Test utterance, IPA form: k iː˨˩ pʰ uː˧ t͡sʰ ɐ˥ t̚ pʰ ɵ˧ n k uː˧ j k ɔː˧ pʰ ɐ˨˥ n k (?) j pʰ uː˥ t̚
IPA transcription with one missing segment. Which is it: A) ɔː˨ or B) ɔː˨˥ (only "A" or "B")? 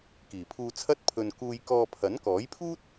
B